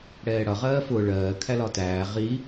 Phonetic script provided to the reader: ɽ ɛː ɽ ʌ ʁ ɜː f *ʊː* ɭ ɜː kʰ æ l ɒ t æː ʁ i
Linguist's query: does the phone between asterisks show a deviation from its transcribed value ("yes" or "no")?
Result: no